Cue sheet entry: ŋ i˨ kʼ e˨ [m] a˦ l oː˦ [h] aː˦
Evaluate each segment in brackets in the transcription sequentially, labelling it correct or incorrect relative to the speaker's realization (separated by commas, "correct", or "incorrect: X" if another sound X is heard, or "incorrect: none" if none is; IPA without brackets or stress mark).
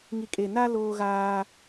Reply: incorrect: n, incorrect: ɣ